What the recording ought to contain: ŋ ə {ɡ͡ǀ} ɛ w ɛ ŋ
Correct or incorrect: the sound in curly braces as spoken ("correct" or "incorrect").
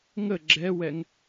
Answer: incorrect